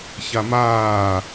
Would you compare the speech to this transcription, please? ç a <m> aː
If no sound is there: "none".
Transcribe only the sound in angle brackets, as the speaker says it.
m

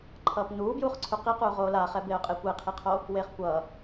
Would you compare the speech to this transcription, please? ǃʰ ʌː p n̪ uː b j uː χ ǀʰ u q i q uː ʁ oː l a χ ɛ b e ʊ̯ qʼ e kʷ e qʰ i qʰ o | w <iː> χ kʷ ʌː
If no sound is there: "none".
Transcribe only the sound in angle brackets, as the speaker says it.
eː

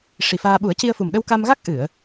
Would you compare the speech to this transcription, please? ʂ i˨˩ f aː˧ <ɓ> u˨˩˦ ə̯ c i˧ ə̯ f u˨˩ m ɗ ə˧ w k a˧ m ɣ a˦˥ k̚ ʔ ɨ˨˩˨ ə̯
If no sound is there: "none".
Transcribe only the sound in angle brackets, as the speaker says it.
ɓ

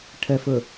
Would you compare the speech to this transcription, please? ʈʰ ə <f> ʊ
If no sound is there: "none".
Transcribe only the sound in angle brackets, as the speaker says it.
f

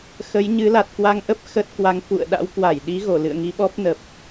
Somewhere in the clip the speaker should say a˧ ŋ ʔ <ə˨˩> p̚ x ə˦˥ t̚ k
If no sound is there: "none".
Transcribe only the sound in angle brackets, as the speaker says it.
ə˦˥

